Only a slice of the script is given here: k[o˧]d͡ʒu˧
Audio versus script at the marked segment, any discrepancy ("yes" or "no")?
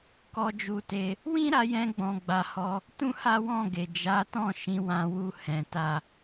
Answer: yes